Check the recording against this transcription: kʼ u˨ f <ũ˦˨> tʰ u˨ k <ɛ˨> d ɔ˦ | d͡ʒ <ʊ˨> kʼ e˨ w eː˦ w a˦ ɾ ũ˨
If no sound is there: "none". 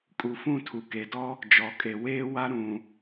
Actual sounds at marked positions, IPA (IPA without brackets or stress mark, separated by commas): ũ˦˨, e˨, ɔ˨